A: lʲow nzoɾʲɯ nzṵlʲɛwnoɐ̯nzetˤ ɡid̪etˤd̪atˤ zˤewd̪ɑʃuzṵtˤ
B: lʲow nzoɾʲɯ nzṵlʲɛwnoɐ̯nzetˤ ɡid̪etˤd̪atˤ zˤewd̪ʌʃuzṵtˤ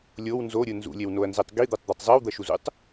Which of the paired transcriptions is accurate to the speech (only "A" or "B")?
B